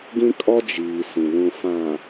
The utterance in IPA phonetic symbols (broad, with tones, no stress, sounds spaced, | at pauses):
ɡ ĩ˦ kʼ ɔ˦ d͡ʒ iː˨ s ĩ˨ l ũ˨ f ã˨